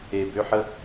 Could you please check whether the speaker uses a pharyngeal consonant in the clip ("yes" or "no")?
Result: yes